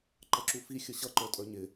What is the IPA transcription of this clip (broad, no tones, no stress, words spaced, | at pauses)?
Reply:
ǃʌǁufi xʲəɕʌ ǃə˞tʼə˞ɲɪ